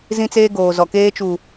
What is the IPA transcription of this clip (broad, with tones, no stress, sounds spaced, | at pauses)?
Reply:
z ĩ˦ t͡s eː˦ ɡ oː˨ z ɔ˨ k eː˦ t͡ʃ u˨